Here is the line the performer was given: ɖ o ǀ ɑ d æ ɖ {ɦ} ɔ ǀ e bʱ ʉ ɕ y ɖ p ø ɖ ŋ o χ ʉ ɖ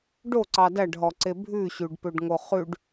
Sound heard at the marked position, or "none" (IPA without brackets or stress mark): ɦ